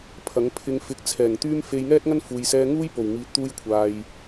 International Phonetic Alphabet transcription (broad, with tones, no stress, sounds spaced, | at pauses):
pʰ ɐ˨˥ ŋ pʰ ɪ˧ ŋ f ɪ˨˥ k̚ t͡sʰ ɛː˨˩ ŋ t̪ yː˥ m f e˧ j ŋ ɛː˥ t̚ ŋ ɐ˥ n f uː˨ j s ɛː˧ ŋ uː˥ j p o˨˩ w ŋ iː˨˥ t̚ t̪ uː˧ j kʷʰ aː˨ j